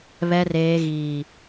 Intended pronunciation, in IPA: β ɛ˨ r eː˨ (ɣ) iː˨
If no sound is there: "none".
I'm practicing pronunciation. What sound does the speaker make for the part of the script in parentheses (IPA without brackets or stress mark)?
ɣ